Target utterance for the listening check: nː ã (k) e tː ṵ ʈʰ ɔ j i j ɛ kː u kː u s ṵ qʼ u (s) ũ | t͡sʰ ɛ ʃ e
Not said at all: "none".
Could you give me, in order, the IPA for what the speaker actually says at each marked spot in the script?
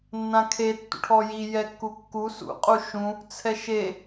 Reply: kʰ, ʃ

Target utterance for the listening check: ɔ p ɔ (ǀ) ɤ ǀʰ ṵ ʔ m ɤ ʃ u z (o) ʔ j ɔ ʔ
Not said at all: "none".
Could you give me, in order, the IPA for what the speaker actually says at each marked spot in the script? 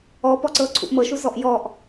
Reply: ǀ, ɔ

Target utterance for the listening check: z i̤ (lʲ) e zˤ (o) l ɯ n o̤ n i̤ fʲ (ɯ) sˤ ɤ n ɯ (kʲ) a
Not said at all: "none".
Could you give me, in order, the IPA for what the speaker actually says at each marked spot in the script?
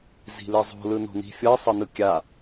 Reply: l, o̤, ɤ, kʲ

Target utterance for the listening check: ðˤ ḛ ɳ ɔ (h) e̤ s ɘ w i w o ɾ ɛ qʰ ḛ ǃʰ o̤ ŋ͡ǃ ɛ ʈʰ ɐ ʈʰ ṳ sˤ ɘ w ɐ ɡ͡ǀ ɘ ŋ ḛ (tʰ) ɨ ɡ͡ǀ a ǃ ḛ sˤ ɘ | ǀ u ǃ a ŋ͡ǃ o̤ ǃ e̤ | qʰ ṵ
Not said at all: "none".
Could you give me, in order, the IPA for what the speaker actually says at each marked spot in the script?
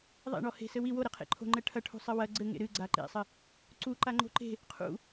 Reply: h, ɾ

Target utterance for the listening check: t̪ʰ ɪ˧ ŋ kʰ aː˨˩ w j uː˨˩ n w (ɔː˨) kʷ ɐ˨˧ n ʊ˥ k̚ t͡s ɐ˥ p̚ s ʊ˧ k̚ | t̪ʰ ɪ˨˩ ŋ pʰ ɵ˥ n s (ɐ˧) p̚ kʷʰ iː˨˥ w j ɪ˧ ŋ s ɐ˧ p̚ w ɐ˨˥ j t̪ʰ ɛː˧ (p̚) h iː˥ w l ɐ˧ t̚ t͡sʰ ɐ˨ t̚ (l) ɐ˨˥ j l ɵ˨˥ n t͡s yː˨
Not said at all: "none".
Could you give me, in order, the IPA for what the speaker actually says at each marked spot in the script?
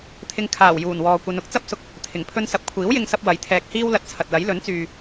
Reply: ɔː˨, ɐ˧, k̚, l

